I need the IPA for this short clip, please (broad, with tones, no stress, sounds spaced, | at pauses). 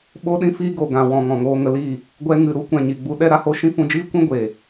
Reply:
ɓ o˦ ɗ ĩ˦ f i˦ ɡ o˨ ɡ ã˨ w ɔ̃˨ ŋ ɔ̃˨ ŋ oː˧ ŋ ə˧ l iː˦˨ | ɡʷ ɛ˧ ŋ ɨ˨ ɾ u˦ kʷ ɛ̃˨ ɲ i˨ ɡ͡b u˧ ɗ ɛ˧ ɾ a˧ h o˧ ʃ ĩ˦ f ũ˧ d͡ʒ iː˦ kʷ ĩ˦ ɡʷ eː˨